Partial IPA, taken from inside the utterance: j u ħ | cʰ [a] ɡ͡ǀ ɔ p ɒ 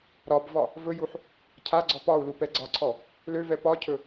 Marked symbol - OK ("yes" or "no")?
yes